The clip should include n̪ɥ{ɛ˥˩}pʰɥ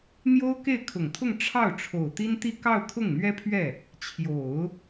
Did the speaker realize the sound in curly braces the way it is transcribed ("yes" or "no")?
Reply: no